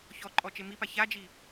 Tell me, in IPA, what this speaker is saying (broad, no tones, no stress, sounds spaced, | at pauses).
ç ɔ ǃʼ ɔ t͡ʃ e m i p a ç a d͡ʒ i